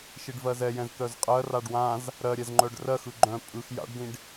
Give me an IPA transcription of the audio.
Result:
ʃ i ɖ v ɜ z ɛ j ɛ̃ z t̪ œ z qʼ ɜ r a ɖ w ã z | ɾ ɜ ɾʲ ɛ z ŋ͡ǃ œ ɖ r ɜ x ɯ ɡ͡ǃ œ̃ pʼ ɯ x j a̰ ɖ d ĩ ɖ

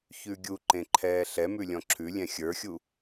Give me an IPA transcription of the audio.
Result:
ç ʉ ɡʲ u ǃ ẽ ǃʰ ɛː ɬ ɛ m ʉ lʲ ɔ̃ ǁʰ ʉ lʲ ɛ̃ xʲ ə˞ xʲ u

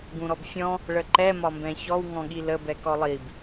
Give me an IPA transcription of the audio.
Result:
ɡ ũ ɾ ɔ b fʲ ɔ̃ | ɭ ə ǃ ɛ m ɒ m b ɛ̃ ç ɔ w ŋ ɔ̃ ɠ i l ə b ɛ k ɔ lˠ i b

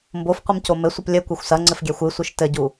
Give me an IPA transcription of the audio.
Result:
m b o f qʷ ɨ m c o m ɘ sʷ ɨ p lʲ ɘ kʷ ɛ xʷ s ɐ ŋ͡ǀ ɘ f ɡʲ ɛ xʷ ɨ sʷ ɨ ʃ t ɘ ɟ u

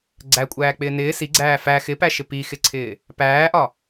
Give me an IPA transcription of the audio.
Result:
ɡ͡ǀ æ kʷʼ æː k͡p ɪː n ɪː s i ɡ͡ǀ æː f æ x ɪ p æ ʃ ɪ p i x ɪ ǀʰ ɪː | p æː ʔ ɒ

